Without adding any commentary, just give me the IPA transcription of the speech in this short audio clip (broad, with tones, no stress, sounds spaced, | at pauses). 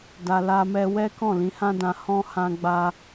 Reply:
d a˧ l a˧ m ɛ˧ w ɛ˦ k ɔ̃˦˨ l ĩ˧ h ã˦ d ã˧ h ɔ̃˦ h ã˧ ɡ͡b a˧